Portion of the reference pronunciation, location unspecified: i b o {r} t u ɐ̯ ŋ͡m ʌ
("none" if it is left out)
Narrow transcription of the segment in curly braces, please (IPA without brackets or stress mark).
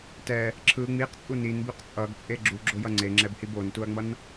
n